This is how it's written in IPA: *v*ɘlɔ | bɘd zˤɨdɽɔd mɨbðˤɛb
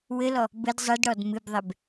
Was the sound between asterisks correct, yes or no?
no